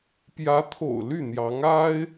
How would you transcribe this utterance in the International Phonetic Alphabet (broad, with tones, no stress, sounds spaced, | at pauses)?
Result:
p j ä˧˥ t̪ʰ o̰˨˩ ʊ̯ l y˥˩ n̪ j ɑ˧˥ ŋ a˥ ɪ̯